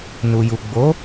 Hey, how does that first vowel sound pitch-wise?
low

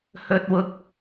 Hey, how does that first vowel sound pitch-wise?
high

